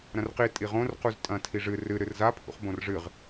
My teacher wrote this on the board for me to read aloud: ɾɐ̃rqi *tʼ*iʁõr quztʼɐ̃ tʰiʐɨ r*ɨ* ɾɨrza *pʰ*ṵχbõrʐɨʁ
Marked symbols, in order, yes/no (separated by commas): yes, yes, yes